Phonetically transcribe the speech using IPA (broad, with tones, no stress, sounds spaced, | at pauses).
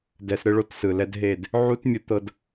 d ɛ˧ s ɾ ɯ˦ ɭ o˦ t s ɯ˨ l ɛ˧ d ɦ e˦˨ d | ʕ u˦ t mʲ ɯ˧ t̪ ɤ˧ d